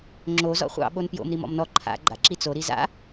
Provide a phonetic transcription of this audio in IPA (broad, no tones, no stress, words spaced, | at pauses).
ŋ͡ǁo zɔ̰χʷɑ̰ ɓonpjo̰m ɾimɔ̰mnɔ ǃʰa̰ ɡ͡ǃa̰ǁit͡so ɾiza̰